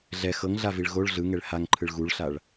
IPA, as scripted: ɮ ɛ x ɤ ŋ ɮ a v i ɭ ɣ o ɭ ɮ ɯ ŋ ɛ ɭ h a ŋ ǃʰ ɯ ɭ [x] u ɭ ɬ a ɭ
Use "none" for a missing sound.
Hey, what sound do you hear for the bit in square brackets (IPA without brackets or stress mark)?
ɣ